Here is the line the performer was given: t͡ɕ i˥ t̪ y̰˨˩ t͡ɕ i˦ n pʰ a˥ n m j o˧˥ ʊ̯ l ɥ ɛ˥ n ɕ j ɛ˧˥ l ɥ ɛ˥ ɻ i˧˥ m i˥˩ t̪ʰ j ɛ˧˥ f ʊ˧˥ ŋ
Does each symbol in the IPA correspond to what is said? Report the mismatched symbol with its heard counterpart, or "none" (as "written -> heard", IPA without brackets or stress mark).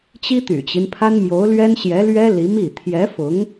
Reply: ɻ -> l